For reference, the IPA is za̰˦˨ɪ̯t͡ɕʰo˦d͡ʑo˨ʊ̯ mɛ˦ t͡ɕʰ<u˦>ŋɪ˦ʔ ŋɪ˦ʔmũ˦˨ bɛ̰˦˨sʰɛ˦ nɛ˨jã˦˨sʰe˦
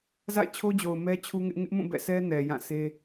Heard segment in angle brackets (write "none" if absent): u˦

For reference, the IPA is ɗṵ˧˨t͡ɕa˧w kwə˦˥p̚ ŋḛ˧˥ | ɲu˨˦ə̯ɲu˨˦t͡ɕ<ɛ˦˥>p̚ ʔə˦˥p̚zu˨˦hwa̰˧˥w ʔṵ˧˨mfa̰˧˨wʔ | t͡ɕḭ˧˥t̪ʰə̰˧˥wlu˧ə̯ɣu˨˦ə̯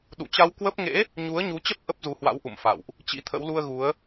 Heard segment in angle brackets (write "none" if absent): ə˦˥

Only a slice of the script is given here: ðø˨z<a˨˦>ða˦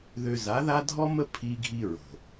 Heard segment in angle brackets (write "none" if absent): a˨˦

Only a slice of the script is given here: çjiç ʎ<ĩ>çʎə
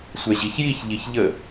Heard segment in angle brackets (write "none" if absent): i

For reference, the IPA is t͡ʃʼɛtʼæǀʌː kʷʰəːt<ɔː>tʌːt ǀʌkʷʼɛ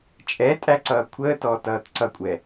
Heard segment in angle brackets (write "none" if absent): ɔː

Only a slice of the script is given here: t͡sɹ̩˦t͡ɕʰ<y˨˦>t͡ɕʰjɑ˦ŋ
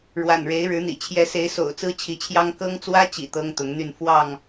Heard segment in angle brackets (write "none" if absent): i˨˦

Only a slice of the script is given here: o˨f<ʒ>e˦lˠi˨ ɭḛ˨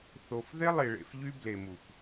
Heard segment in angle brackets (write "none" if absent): ð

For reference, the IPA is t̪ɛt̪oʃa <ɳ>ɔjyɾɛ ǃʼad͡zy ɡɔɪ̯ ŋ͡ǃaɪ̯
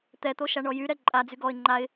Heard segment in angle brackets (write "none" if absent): ɳ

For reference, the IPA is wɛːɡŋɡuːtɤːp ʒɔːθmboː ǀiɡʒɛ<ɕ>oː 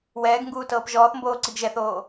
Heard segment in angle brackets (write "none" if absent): θ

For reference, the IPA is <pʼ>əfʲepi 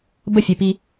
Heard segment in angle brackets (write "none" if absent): b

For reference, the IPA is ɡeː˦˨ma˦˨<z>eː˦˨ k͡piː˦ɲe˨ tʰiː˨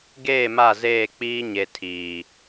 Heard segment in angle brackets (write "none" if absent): z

